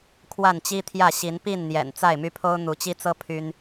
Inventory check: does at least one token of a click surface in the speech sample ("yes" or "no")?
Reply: no